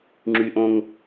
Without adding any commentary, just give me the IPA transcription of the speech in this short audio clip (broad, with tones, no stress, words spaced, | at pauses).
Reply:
ŋ͡ǁy˨ ʔõ˦ŋ